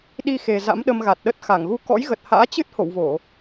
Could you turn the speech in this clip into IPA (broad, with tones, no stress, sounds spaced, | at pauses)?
ɗ i˧ x e˨˩ z a̰˧˥ m ɗ ə˧ m ɣ a˨˩ t̚ ɗ ə˦˥ t̚ x a˧˩ ŋ ɣ u˧ k ɔ̰˧˥ j ɣ ə˨˩ t̚ h a̰ː˧˥ t͡ɕ ɨ˦˥ t̚ h o̰˧˨ w v o˧˩˨